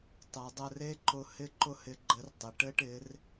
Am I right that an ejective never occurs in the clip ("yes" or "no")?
yes